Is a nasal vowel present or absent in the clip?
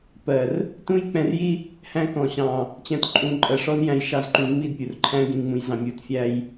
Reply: present